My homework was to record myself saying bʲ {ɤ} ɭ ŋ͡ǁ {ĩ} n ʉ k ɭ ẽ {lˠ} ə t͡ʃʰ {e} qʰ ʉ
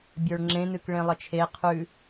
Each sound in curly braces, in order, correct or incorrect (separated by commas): incorrect, incorrect, correct, correct